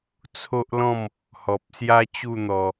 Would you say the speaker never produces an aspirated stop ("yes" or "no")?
no